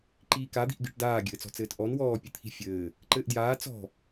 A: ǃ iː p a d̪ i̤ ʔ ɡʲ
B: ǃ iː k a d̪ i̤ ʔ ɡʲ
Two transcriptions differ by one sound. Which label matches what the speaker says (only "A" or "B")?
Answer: B